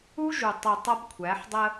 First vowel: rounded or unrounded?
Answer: rounded